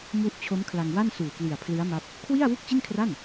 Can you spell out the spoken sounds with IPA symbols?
m u˥˩ ʔ t͡ɕʰ o˦˥ m kʰ l a˧ ŋ w a˥˩ n s uː˨˩ k l i˨˩ a̯ pʰ l ɯ˦˥ a̯ m a˦˥ p̚ | kʰ w i˥˩ a̯ w u˥˩ k̚ t͡ɕ i˥˩ n kʰ r a˥˩ n

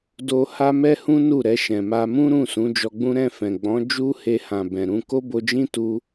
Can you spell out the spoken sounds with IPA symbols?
d o˦ h a˦ m ɛ˦ h ũ˦ n u˦˨ ɾ ɛ˧ ʃ ɛ̃˨ m a˧ m ũ˦ ɾ ũ˦˨ s ũ˨˦ d͡ʒ ɔ˧ ɡ͡b ũ˦ ɾ ɛ̃˦˨ f ɛ̃˨ ɡ͡b ɔ̃˨˦ d͡ʒ u˦ h e˧ h ã˨ b ɛ̃˨ ɾ ũ˧ k o˦ b o˧ d͡ʒ ĩ˦ t u˦

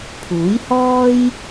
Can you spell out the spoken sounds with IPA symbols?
pʰ uː˨˥ j h ɔː˥ j

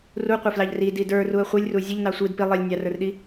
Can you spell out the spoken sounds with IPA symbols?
r u qʷ ɪ f l ɑ ʎ r i d i d ə˞ r u ə̯ χʷ i lʲ r u zʲ ə ʎ n ɑ sʷ i d p i lˠ i lʲ nʲ ɑ r ə˞ r ɗ i

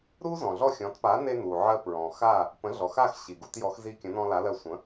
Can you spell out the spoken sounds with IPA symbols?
ɾ u˥ z ɔ̃˩ ɮ ɔ˥˩ xʲ ɔ̃˩˥ t p a˩˥ n e˧ n u˩ ʕ ɜ˧ p ɹ ɔ̃˩ x a˥˩ | p ə̃˩˥ ɮ ɔ˩ x a˥˩ x ɕ i˩ ɡ u˥˩ t j ɔ˩˥ x z i˧ kʲ ə̃˩˥ n ɔ̃˧ l a˩˥ l ɜ˧ sʷ ə̃˩˥

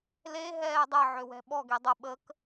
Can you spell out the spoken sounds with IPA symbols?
l e ɦ ɛː dˤ ə ʕ ø w ɛ̤ ɓ ɔ ɡ e dˤ ə ɓ ə k

